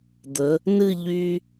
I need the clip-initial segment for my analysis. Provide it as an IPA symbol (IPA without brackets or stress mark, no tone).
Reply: d̪